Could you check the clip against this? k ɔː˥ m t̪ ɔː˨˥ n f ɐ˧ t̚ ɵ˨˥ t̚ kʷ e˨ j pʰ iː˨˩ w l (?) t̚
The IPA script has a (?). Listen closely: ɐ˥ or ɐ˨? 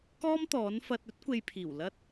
ɐ˥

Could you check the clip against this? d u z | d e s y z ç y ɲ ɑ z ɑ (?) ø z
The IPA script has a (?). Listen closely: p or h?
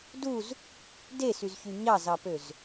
p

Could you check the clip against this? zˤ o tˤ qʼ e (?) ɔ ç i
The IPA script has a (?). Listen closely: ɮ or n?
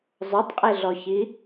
ɮ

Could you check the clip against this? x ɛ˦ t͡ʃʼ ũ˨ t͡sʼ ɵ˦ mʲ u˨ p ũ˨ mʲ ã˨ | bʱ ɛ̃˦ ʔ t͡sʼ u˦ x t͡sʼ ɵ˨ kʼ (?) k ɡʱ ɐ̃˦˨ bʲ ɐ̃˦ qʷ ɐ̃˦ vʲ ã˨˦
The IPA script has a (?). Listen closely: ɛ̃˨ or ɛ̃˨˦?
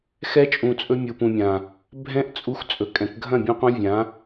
ɛ̃˨˦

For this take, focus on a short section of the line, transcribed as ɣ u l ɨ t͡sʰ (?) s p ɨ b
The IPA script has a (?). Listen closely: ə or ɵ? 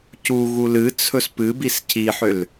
ɵ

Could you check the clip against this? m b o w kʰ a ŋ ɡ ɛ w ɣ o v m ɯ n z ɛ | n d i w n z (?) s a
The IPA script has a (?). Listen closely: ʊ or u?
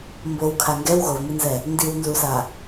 u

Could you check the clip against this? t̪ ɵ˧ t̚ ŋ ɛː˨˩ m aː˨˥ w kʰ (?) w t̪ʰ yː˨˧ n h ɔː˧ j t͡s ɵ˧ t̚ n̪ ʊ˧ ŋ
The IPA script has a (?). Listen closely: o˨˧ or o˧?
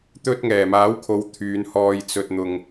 o˨˧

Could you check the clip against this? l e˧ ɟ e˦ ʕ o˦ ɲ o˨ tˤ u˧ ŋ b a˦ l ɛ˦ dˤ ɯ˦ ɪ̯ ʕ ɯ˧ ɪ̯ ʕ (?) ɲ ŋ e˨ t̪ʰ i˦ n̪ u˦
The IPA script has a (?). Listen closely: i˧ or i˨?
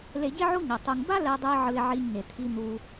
i˧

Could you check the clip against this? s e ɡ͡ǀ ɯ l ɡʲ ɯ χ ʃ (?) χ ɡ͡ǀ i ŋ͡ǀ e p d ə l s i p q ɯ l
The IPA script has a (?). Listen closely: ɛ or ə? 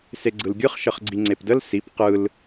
ə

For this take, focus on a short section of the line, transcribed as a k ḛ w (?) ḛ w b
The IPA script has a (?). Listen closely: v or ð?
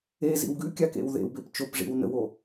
ð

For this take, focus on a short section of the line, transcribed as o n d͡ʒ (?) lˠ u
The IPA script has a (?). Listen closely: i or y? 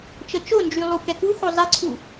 y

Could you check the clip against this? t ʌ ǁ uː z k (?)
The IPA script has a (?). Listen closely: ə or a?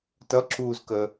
ə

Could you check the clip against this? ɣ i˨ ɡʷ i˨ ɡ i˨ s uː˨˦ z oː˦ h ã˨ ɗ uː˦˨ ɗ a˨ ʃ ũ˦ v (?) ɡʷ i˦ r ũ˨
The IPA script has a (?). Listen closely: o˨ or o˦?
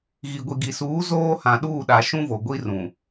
o˨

